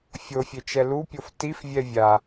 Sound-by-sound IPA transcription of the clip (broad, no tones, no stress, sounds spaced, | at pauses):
fʲ o fʲ e t͡ʃ ɛ l u pʲ o f t i f vʲ ɛ vʲ a